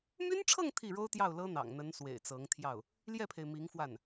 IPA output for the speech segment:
m y˥ n ʈ͡ʂʰ ɤ˥˧ ŋ t̪ʰ i˥˩ ɻ o˥ ʊ̯ t̪ j ɑ˥˩ ʊ̯ l ɤ˥ n̪ ɑ̰˨˩ ŋ n̪ ə˧˥ n s w ḛ˨˩ ɪ̯ t͡s ɤ˧˥ ŋ t̪ʰ j ɑ˥˩ ʊ̯ | l j ɛ˥˩ pʰ e˩ ɪ̯ m i˧˥ ŋ f w a˥˩ n

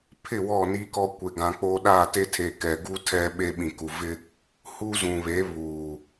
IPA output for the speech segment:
pʰ ɪ˦˨ w ɔ˦˨ n i˦ k ɔ˦ kʷ e˨ ɡ ã˨ k͡p o˦ ɗ aː˦˨ t e˦ tʰ e˨ k ɛ˨ ɡ u˦ tʰ ɛ˦ ɓ e˦ ɓ ĩ˨ k u˨ v ɪ˦ | h u˦ z ũ˨ β e˨˦ β uː˨

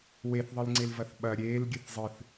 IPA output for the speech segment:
w e θ ðˤ ɨ l ŋ͡ǀ e l v ɐ θ ɓ ɐ ɾʲ eː l ɡʲ ɨ θ zˤ ɨ θ

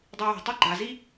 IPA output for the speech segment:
dˤ i w e̤ tˤ e ɡ͡ǃ a z i

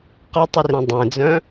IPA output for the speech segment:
q ʌ tˤ i r ẽ dˤ ẽ d͡z œ̃

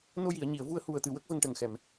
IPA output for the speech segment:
n o˧ j i˨˩˨ ə̯ ɲ i˨˩˨ ə̯ v u˧ ə̯ h u˨˩ ə̯ t̪ ɨ˨˩ w ə˦˥ k̚ v ə˧ ŋ ʈ ə˨˩ ŋ x ɛ˨˩˨ m

